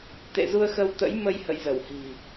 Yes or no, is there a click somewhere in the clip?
no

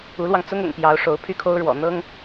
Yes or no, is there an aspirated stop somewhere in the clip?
yes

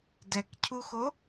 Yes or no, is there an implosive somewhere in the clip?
no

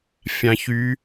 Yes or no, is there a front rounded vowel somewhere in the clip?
yes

